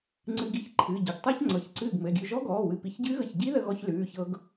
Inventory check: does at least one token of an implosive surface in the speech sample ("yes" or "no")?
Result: no